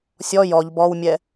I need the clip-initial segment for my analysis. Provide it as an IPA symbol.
sʲ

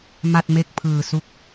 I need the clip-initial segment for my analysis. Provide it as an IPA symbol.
m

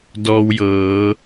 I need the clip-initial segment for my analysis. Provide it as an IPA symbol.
d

